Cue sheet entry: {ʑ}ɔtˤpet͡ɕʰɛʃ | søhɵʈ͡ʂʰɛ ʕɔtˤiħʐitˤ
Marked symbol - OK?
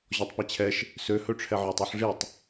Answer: yes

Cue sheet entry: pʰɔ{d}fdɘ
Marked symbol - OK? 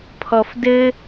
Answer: no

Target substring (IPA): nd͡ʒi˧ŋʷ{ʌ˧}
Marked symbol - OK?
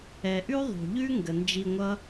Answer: no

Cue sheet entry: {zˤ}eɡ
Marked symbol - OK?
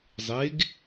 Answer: yes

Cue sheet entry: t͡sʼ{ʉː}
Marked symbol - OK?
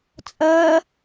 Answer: no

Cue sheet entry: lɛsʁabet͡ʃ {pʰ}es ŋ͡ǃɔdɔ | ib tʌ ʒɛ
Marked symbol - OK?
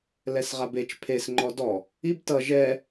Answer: yes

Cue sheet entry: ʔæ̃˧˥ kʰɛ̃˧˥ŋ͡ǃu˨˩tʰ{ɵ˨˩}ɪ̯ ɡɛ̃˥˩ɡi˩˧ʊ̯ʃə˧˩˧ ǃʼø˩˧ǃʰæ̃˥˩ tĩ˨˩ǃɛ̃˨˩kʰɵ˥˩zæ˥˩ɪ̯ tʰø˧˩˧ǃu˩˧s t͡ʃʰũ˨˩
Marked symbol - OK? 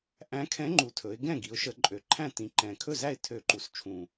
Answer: no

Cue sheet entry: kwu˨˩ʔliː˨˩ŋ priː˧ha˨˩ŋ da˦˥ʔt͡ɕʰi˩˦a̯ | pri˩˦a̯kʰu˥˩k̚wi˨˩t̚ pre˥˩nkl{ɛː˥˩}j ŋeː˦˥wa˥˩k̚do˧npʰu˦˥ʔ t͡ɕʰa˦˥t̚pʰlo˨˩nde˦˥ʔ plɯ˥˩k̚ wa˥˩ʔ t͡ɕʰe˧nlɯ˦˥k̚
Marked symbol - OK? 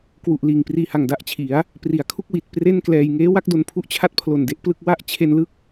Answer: no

